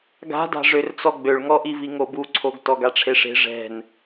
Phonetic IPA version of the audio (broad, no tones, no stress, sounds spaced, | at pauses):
ɡ a̤ d a̤ ʐ ø r t͡s ɔ ɡ͡b ø ɭ ŋ ɔ ʔ i v i ŋ o b u ǀʰ o ɡ t ɔ ɡ a ʈ͡ʂʰ e ʂ e̤ ʐ ɛ̤ n